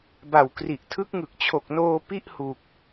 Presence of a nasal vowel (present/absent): absent